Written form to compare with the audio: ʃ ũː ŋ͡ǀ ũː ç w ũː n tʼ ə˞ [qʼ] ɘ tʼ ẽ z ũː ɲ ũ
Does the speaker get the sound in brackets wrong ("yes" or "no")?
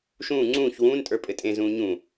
yes